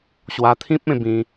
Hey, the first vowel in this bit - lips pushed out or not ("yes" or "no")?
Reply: no